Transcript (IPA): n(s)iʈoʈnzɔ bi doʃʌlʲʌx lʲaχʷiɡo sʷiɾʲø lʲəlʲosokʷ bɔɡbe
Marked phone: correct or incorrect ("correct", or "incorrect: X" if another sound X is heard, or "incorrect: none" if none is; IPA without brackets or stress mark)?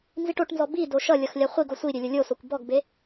incorrect: z